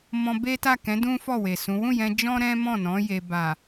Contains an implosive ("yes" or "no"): no